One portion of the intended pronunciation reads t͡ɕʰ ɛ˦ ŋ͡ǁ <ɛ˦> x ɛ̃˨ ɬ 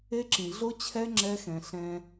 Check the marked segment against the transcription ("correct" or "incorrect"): correct